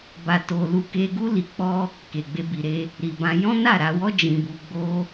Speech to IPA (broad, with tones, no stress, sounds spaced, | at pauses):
b a˨ t o˨ l u˧ k e˧ ɡ u˦ l i˧ k͡p ɔ˦ | k e˨ ɡ͡b e˧ b i˨ ɾ e˧ | ɾ i˨ b ã˧ j ɔ̃˦ n a˦˨ ɾ a˧ w ɔ˦ d͡ʒ ĩ˧ b u˧ ɡ͡b o˧